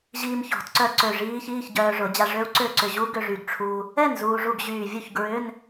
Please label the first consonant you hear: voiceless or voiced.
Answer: voiced